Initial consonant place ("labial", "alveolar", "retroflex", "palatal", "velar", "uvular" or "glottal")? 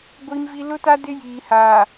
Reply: velar